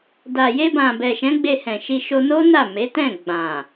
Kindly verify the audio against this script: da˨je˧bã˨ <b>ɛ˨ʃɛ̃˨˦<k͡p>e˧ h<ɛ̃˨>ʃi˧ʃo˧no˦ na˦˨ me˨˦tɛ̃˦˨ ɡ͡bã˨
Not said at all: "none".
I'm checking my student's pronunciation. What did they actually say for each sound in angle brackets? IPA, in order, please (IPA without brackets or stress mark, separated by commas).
b, ɡ͡b, ɛ̃˨